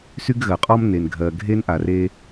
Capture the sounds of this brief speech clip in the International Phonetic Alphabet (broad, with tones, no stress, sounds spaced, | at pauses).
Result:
s y˥ ɡ ɣ ɜ˩ qʼ ɔ˥ m n e˩ n ɡʱ ɜ˩ ɡʱ e˥ n ʔ a˩ r e˦